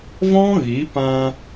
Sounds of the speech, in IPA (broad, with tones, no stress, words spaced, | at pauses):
vɔ̃˦ ɣi˨˦pã˧